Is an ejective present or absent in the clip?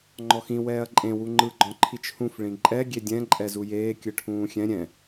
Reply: present